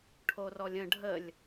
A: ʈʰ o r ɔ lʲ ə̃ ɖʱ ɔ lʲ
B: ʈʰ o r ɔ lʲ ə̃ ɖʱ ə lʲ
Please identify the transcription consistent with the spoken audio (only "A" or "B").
B